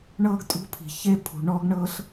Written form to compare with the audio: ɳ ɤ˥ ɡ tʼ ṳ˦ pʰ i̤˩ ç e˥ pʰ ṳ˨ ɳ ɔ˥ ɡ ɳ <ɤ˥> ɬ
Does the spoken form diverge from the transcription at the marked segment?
no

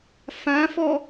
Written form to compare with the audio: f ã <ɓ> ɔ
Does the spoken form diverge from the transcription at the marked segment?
yes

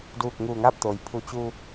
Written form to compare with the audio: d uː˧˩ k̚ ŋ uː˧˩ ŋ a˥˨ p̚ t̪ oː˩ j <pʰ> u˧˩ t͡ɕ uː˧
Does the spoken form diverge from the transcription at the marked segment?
no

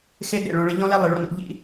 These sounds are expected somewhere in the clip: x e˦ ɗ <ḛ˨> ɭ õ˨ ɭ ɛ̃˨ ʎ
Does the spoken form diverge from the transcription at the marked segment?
no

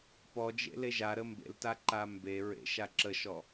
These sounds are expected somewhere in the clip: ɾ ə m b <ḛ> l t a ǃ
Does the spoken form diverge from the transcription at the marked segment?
no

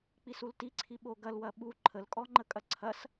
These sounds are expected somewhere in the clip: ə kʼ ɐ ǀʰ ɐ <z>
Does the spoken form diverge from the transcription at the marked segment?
yes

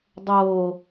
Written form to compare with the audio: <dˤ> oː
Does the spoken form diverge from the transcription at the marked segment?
no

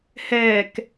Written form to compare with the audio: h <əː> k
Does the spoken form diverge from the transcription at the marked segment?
yes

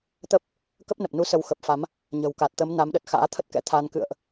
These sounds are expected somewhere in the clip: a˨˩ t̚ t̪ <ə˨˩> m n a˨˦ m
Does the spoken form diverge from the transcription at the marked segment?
yes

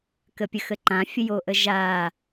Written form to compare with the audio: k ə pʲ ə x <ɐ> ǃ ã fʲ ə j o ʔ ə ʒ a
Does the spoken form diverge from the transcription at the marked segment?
yes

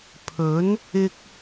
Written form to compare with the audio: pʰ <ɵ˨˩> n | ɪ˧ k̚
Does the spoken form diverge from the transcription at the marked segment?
yes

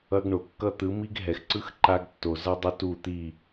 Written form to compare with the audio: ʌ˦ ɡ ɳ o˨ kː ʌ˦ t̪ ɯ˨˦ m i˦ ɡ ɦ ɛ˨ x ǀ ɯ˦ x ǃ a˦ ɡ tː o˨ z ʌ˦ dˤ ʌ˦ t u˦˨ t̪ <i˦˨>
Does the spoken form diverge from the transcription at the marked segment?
no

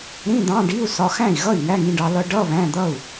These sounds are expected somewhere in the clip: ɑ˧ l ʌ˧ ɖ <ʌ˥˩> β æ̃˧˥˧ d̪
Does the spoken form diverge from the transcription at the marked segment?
yes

